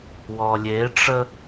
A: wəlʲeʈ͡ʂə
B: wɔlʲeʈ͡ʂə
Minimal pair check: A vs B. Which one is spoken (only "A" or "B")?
B